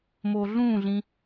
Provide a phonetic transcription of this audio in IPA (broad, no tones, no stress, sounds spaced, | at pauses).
m oː ɮ ũː ɮ ĩ